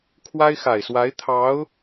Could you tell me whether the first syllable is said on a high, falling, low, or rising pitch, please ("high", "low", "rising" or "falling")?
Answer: high